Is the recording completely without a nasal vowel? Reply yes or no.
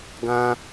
no